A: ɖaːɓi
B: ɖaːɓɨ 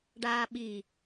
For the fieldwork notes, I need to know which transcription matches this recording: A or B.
A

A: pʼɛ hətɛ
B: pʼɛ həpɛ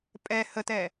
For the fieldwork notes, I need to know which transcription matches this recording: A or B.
A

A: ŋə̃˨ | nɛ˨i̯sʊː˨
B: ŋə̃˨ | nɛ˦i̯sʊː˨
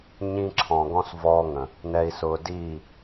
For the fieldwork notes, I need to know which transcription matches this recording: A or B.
A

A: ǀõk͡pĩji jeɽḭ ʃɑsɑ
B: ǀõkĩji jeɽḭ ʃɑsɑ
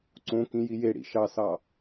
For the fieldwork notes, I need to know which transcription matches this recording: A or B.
B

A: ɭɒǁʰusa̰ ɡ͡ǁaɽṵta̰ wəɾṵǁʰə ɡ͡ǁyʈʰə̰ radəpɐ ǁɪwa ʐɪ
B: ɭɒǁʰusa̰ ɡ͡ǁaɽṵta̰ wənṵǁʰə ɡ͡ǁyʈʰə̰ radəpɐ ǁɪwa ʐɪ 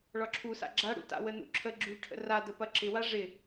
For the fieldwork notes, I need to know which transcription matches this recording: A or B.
B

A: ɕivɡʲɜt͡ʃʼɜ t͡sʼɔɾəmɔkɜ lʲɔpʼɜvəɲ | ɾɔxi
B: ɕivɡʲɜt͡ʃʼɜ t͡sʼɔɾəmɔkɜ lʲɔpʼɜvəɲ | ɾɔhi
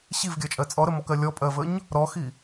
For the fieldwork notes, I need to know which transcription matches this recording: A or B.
A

